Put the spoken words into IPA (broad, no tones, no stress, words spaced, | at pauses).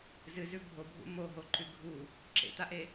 zɨzʉ bʱobʱṵ moɦoǃʉ ɡʱu | ǁḛt̪aʔe